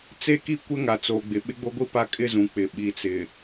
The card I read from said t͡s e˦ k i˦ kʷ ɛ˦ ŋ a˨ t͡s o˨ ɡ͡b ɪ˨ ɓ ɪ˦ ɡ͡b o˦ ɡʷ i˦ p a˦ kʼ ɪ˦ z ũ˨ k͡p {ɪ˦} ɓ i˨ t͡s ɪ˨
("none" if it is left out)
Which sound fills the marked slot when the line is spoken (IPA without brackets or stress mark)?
ɪ˨